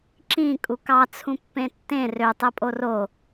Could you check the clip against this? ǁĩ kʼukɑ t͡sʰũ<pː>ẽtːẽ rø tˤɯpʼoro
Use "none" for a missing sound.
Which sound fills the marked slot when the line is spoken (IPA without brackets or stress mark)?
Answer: pː